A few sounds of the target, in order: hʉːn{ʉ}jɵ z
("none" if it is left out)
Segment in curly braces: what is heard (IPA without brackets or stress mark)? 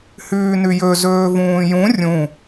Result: ʉ